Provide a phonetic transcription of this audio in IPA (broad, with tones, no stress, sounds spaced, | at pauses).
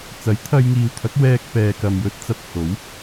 t͡s ɐ˨˥ j t̪ʰ ɐ˧ j ŋ iː˨ w t̪ʰ ɐ˨˥ k̚ w ɛː˧ k̚ p ɛː˨ k ɐ˨ m j ɵ˧ t̚ t͡s ɐ˧ p̚ h o˨˥ w